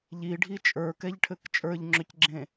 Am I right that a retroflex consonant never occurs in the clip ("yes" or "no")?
no